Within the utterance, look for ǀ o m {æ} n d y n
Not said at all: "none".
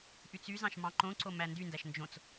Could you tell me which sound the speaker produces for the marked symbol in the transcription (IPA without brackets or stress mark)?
æ